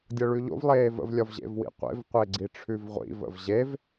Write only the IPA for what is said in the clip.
dʲ ɤ ɭ ʉ ʎ o̰ v lˠ eː v ə̰ v lʲ ɒ v ʑ ḛ v w ḭ qʷ ḛ v qʷ e ɡ͡ǀ i ʈ͡ʂʰ ʉ v ʁʷ ḭ v ə̰ v ʑ e v

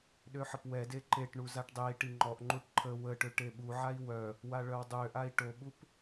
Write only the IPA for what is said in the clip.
ɗ ø ħ ə p w ɛ d e ǃ e ʈ ɳ u z a ʈ dˤ e i̯ ʈ i ŋ͡ǃ ɔ ʔ ŋ͡ǃ u ʈ ǃʰ ə w ə ʈ ø ʈ e ɓ u ʕ a i̯ w œ | w a ɭ œ w dˤ ø ʔ a i̯ ʈ o ɓ u p

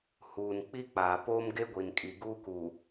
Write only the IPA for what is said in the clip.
h uː˨ n k͡p i˦ k͡p aː˨ p oː˦ m ɡ e˦ ɡʷ i˨ n kʼ i˨ ɡ uː˦ k uː˨

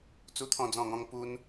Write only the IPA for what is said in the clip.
t͡s u˥˧ t̪ʰ ɔ̃˥˧ d͡z ɔ̃˥˧ ŋ ɔ̃˦ ŋ p u˦ n

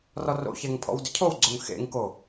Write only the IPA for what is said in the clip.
r ɔ r o̰ ç ɛ ŋ pʰ ɔ̰ w d ʏ cʰ o w ɡ͡ǀ o ŋ x ḛ ŋ k o

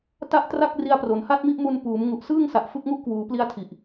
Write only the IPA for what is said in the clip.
t a˥˩ ʔ t r a˥˩ k̚ r i˧ a̯ p r o˩˦ n h a˥˩ t̚ m i˥˩ ʔ m u˧ n p uː˩˦ m ŋ u˨˩ ʔ s ɯː˥˩ ŋ s a˨˩ ʔ f ɯ˥˩ k̚ ŋ u˥˩ ʔ k w uː˩˦ p l i˧ a̯ tʰ i˨˩ ʔ

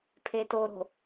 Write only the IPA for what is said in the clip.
pʰ e t o ɾ o̤

